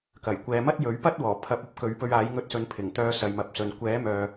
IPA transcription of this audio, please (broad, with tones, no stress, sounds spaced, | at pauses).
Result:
k ɐ˨˩ j kʷ ɛː˨˧ m ɐ˥ t̚ j ɵ˨˥ ɥ p ɐ˥ t̚ w ɔː˨˩ pʰ ɐ˨˥ p̚ ɐ˨˥ p̚ k ɵ˨˥ ɥ p ɵ˧ ɥ aː˨˥ j ŋ ɵ˧ t̚ s ɵ˨˧ n pʰ ɪ˨˩ ŋ t̪ œː˧ s ɐ˨˧ j m ɐ˨˥ p̚ s ɵ˨ n kʷ ɛː˨˥ m œː˨